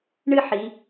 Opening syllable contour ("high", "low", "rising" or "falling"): falling